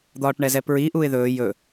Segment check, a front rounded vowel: absent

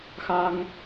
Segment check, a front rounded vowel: absent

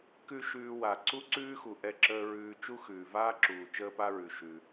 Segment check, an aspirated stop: absent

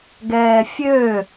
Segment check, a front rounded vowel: present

